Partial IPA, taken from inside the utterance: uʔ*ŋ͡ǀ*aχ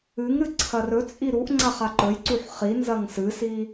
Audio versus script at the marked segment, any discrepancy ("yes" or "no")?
no